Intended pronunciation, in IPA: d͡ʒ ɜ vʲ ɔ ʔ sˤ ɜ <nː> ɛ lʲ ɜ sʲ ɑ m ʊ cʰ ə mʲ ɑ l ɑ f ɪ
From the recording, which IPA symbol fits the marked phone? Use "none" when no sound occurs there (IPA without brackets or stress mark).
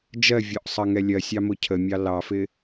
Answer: ŋ